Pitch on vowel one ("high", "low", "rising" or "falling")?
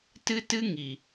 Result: high